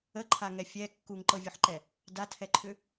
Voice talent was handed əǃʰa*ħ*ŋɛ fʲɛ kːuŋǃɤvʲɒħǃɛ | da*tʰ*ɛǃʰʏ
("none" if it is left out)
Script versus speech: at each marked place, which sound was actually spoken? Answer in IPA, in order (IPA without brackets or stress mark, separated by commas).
none, tʰ